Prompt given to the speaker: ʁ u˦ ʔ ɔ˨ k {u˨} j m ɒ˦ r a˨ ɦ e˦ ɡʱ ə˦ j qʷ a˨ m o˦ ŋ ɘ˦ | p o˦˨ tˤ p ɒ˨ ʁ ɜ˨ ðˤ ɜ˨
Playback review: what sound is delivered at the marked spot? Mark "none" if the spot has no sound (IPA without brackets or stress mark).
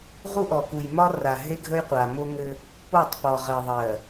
u˨